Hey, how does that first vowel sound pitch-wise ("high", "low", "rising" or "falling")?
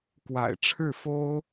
low